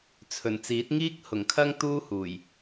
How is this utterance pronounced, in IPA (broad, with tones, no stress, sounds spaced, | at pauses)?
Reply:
t͡sʰ ɵ˨˩ n t͡s iː˨˥ t̚ ŋ iː˥ k̚ h ʊ˨˩ ŋ kʰ ɐ˥ ŋ t̪ uː˥ h uː˨˩ j